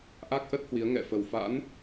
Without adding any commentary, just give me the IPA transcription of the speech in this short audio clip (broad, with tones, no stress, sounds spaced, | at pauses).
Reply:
ʔ a˦˥ k̚ ʔ ə˦˥ t̚ h w i˨˦ ə̯ ŋ ɛ̰˧˨ f ə˨˩ w f a̰˧˥ n